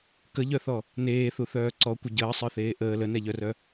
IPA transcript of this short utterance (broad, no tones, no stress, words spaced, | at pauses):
kəʎœθɔ | neːθuθœː ǀɔkʷɪ ɟəːsˤə˞θeː ʔəː lənɛʎœrœ